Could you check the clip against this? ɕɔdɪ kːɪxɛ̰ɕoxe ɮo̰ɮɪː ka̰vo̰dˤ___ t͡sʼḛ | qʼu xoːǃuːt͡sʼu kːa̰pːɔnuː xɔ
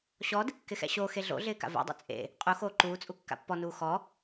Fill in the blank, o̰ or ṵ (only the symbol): ṵ